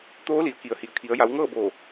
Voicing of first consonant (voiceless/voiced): voiceless